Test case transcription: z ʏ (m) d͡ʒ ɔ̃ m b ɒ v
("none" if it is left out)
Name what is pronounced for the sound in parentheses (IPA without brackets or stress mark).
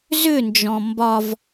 n